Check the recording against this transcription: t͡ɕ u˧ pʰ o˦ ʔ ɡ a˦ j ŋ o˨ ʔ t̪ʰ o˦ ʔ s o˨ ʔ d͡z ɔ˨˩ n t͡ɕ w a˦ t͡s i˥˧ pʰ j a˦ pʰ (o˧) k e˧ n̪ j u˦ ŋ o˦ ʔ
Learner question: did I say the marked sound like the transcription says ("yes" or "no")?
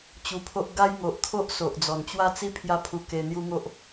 no